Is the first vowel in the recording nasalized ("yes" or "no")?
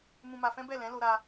yes